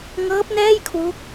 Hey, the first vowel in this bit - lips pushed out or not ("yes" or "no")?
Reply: no